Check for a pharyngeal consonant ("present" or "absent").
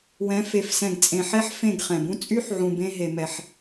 present